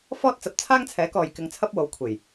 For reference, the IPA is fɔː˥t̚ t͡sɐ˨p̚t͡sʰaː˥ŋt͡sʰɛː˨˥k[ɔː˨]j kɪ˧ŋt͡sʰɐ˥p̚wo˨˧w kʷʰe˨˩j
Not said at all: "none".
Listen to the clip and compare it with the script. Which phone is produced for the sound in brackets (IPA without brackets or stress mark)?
ɔː˨